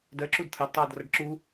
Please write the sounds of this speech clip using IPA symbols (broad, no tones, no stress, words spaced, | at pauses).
dɜǁud t̪ʰɜdtˤʌːd rʌɖǁu